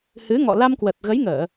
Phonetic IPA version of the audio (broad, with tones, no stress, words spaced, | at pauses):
hɨ˨˦ŋɔ̰˧˨ la˧mkwə˨˩t̚ɣə˨˦jŋəː˧˩˨